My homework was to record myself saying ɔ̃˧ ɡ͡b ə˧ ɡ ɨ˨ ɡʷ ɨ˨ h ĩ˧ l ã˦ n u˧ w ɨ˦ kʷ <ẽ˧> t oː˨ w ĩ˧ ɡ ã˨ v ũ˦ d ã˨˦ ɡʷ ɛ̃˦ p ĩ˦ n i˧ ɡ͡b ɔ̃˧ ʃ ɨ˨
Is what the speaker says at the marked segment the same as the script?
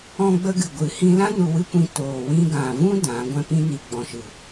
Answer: no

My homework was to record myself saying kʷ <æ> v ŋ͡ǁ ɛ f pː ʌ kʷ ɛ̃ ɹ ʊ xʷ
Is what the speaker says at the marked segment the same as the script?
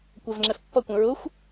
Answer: yes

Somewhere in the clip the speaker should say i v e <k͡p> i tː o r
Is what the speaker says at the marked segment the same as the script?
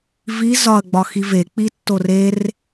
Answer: yes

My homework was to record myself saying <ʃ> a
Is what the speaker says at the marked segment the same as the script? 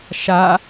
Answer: yes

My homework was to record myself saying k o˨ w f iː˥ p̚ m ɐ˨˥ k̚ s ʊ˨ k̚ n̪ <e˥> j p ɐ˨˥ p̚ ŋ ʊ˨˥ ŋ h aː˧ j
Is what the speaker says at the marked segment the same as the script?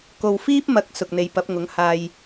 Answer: no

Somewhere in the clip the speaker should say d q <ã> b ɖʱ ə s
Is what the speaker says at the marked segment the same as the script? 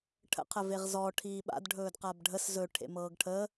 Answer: no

